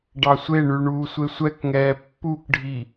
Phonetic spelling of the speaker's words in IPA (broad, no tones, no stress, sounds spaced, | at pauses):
ɖ ɑ sʷ e ɳ ʉ ɳ uː sʷ e sʷ ɛ k ŋ ɛː pː u k ɖʱ i